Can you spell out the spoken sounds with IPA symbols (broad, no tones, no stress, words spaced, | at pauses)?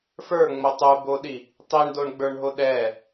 fə˞ŋ͡mo tˤuboɗi | tˤiɳdoɳɡ͡bə˞ɳɦo ɗɛ